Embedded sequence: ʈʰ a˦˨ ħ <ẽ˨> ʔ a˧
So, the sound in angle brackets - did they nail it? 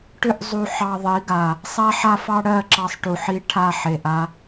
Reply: no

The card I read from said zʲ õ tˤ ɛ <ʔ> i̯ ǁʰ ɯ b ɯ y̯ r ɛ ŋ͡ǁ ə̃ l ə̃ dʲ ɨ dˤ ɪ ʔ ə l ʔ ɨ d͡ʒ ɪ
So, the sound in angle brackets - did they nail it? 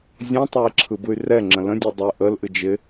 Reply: no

